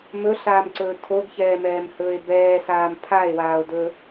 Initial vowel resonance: oral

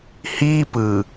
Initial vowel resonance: oral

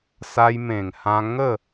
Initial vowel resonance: oral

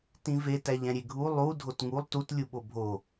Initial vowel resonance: nasal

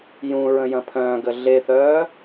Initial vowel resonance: nasal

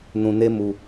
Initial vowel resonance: nasal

